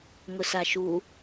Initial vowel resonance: oral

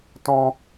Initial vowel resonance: nasal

